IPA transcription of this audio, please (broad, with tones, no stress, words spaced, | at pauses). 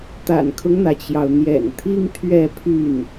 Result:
t̪a̰˨˩nkʰʊ˦ŋn̪ä˩t͡ɕjɑ˩ʊ̯ n̪jɛ̰˨˩nt̪ʰi˥ŋ t̪ʰɥɛ˥˧pʰy˥˩n